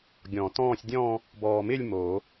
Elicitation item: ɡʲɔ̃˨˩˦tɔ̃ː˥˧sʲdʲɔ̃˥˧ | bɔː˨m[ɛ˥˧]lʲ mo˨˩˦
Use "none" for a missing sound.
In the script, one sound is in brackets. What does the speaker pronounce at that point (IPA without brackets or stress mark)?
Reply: ɪ˥˧